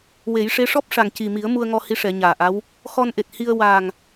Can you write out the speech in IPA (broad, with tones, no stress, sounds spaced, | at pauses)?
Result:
w e˨˩˦ j ʂ e˧˥ ʂ ɔ˦˥ p̚ ʂ a˨˩ ŋ c i˨˩ m i˨˩˦ ə̯ m u˧ ə̯ ŋ ɔ˧ h i˧˥ ʂ ɛ˨˩˦ ɲ aː˨˩ ʔ a˧˥ w | x ɔ˧ n ʔ e˨˩ t̚ h i˧ ə̯ w aː˨˩ ŋ